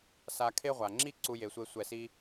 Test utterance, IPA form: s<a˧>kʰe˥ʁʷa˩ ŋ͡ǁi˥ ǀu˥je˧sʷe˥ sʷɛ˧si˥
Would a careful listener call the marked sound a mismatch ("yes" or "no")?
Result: no